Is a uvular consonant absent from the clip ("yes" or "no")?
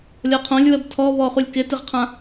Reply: no